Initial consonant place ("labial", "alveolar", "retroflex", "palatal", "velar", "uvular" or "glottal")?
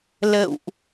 alveolar